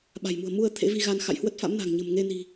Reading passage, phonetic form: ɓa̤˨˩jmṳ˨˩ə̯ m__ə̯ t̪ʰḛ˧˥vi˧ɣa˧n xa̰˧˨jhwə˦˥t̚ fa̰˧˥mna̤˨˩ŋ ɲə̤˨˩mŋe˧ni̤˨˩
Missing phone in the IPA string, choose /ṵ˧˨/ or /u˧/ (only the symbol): u˧